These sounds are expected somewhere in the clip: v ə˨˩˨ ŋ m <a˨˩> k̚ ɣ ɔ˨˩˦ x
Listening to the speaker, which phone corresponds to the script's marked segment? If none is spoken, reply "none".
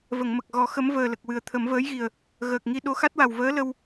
ə˨˩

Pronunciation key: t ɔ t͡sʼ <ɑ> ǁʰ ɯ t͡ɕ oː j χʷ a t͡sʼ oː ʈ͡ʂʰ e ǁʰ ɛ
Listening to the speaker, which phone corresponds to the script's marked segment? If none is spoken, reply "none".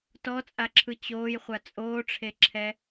a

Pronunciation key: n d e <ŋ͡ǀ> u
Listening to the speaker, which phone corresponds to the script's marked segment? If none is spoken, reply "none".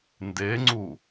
ŋ͡ǀ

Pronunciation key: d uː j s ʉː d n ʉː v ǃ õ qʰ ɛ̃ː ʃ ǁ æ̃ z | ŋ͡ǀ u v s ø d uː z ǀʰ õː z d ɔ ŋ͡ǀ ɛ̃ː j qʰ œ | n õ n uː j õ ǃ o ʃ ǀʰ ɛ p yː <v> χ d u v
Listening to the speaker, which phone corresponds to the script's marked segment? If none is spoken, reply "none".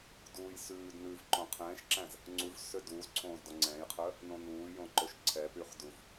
none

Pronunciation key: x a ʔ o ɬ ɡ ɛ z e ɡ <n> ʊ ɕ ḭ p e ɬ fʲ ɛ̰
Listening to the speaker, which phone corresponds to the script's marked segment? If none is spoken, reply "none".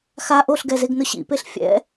n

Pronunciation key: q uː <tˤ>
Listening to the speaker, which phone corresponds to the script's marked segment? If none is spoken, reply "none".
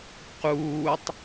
tˤ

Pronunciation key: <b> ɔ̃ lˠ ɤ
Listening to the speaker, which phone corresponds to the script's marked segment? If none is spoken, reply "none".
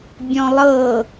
bʲ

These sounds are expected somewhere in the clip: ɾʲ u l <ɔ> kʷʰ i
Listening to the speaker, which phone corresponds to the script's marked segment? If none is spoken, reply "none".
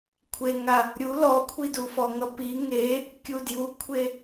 ɔ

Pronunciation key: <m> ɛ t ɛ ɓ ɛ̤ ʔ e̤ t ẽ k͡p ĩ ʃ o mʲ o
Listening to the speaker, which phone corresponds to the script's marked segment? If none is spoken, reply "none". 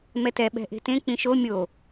m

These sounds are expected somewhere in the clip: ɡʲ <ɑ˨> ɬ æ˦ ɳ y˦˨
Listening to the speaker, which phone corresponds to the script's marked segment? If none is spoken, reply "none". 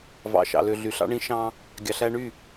ɑ˨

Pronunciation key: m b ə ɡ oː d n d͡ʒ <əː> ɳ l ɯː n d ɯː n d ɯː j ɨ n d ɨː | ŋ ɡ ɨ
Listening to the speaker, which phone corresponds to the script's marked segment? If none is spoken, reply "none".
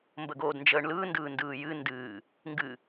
əː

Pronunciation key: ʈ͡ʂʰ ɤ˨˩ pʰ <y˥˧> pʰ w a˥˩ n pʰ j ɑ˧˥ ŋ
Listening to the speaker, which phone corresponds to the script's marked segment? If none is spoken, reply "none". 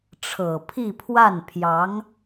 i˥˧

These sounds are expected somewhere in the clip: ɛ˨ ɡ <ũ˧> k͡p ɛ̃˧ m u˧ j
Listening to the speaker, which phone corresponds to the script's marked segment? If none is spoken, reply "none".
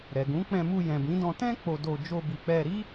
ũ˨˦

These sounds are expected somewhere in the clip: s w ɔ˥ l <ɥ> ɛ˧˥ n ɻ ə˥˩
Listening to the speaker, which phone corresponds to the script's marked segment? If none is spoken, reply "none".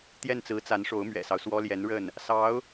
j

